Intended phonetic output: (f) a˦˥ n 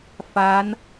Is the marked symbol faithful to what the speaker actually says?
yes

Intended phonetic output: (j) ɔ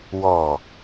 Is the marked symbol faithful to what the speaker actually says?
no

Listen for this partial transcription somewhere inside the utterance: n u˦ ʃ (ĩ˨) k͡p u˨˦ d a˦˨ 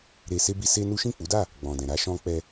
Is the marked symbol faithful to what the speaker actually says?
no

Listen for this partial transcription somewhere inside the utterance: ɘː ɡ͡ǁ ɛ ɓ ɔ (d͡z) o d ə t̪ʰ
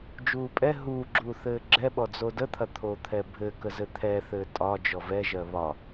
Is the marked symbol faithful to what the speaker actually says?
yes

